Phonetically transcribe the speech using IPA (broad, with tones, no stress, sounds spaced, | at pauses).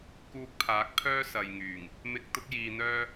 k uː˧ k̚ pʰ aː˨˥ k̚ pʰ œː˥ s ɐ˨ j ŋ yː˨˩ ŋ | m ɪ˧ k̚ t̪ ʊ˥ k̚ j iː˧ n̪ œː˥